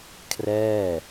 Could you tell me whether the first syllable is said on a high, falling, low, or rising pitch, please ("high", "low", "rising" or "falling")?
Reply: falling